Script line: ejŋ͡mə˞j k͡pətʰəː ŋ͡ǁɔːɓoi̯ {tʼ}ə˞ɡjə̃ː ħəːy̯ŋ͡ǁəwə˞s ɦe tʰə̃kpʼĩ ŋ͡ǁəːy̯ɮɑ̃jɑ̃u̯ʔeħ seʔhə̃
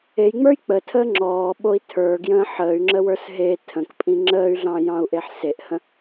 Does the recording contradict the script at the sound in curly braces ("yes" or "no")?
yes